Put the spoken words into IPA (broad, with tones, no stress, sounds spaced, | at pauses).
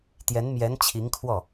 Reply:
t̪ j ɛ˧˥ n m j ɛ˧˥ n t͡ɕʰ i˧˥ ŋ kʰ w ɔ˥˩